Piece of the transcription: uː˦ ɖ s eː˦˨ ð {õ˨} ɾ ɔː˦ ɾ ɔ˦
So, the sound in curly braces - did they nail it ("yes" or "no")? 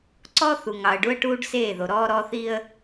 no